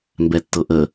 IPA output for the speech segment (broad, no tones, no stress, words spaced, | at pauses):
mbɛtːɤʔə